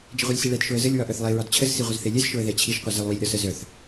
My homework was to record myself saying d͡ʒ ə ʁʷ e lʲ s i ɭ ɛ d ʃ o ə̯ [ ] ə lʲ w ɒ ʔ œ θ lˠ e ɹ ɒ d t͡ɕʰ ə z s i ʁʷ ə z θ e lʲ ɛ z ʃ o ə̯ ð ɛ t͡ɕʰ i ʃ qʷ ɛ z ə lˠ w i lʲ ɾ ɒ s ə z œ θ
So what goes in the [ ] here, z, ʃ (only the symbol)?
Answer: z